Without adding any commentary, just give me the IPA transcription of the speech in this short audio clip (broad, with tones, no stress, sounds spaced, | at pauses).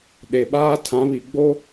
ɗ e˨ ɓ aː˦ tʰ ã˨˦ β i˨ ɡ͡b o˦